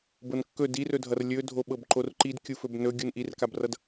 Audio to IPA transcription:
b ɤ n kː ɵ d i r ɵ dʱ ʌ r lʲ ɵ dʱ o ɓ ɤ b ǃ o r ǃ i d kʲ u f ɵ b n ɵ ɡʲ u n ʔ i r k a b r ʌ d

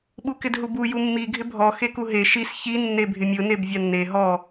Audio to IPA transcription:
ɓ u k ɪ d ɦ u b u j u mː i ɡʱ ɪ bʱ ɔ x e k u ɦ e ʃ i s ç i nː e bʱ ɪ mʲ ʊ n e b vʲ a nː e ɦ ɔ

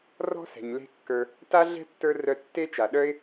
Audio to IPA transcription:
r ɔ̤˥ s ɛ̤˩ ɲ l e̤˦ kː ə˞˨ | t a˥ ɮ ɛ̤˥ tː ə˞˦ r œ˦ tː e˥ t͡ʃ a˨ ɗ œ˥ ɪ̯

